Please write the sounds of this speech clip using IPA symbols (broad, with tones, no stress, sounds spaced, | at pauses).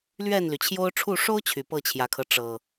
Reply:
l ɥ ɛ˥˨ n l y˩ t͡ɕʰ j o˦ ʊ̯ ʈ͡ʂʰ u˥˨ ʂ o˦ ʊ̯ t͡ɕʰ y˨˩ p ɤ˥˨ t͡ɕʰ j ä˨˩ kʰ ɤ˦ ʈ͡ʂ ɤ˨˩